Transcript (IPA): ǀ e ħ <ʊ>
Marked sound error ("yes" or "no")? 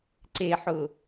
no